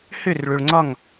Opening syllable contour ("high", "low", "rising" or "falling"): falling